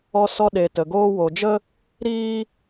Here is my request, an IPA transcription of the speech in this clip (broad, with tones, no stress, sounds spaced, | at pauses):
ɔ˧ s ɔ˧ ɗ e˨ t ə˨ ɡ oː˦ w o˨ d͡ʒ ə˦ | ɾ iː˦